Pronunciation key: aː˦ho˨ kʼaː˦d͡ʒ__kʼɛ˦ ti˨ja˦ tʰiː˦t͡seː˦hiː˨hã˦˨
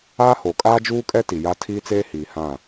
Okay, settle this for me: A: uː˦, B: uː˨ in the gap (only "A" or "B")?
A